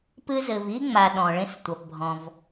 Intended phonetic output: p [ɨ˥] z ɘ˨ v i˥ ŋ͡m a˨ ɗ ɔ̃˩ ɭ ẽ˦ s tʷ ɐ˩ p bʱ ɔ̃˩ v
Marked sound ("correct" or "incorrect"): correct